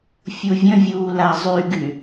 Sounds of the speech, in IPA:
fʲuvʲə̃vʲuː lazˤyɡy

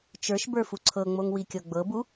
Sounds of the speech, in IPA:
t͡ʃə˞ʃbə˞ fuǀʰɤŋ͡moŋ wikʲɤɡ͡bɤbu

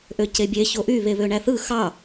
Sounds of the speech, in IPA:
ʔøcebʲe çoʔy βeβøɳæθɯ xɑ

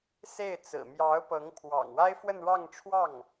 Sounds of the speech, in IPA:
se˥˩ɪ̯ t͡sɹ̩˨˩mjɑ˧˥ʊ̯pɤ˧˥ŋ pʰwɑ̰˨˩ŋ wa˥ɪ̯fwə˥˧n ɻɑ˥˧ŋʈ͡ʂʰwɑ˥˩ŋ

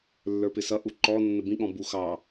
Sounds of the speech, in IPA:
lːə˞pɪsʌ ʔuǃɔ nːəbĩ ɠɔ̃bu xɑ

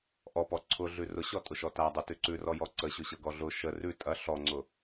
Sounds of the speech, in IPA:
ʔɔpɔ ǀʰʊɮʉ rʊɕɔtʼʊʃɔ tadˤʉtʉ ǀʉrɔjɔ ǀəɕʊɕɤɡɔ ɮʊ ʃə rʉ tʼɐ ɬɔŋ͡ǀʊ

